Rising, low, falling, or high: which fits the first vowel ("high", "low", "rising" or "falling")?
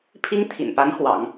high